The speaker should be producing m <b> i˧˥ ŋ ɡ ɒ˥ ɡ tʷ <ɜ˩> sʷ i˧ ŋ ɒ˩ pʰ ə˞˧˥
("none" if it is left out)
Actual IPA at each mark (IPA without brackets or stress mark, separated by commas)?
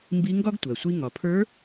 b, ɜ˩